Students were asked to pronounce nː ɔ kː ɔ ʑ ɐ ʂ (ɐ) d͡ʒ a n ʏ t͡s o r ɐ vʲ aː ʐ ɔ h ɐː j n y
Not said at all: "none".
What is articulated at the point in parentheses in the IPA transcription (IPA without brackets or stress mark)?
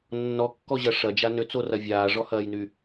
ɐ